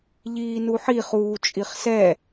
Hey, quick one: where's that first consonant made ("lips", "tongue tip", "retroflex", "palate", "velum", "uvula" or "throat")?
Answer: palate